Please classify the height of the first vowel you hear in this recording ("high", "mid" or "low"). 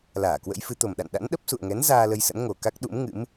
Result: low